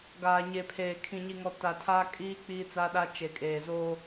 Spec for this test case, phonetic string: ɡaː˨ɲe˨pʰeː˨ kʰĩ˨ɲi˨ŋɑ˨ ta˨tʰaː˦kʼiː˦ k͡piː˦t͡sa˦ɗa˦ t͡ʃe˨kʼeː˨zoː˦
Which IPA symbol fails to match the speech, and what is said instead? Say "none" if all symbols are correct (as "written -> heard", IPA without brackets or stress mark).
ɑ˨ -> ɔ˨